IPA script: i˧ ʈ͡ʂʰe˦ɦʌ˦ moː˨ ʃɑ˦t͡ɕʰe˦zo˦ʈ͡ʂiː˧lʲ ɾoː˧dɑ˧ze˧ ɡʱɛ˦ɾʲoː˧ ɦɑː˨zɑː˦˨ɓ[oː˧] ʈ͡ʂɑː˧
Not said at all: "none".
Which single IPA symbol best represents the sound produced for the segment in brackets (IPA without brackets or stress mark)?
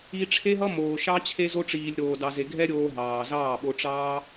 o˧